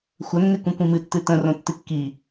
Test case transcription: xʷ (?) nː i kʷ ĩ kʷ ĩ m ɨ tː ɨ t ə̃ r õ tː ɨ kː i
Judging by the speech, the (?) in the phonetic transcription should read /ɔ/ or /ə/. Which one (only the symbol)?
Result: ə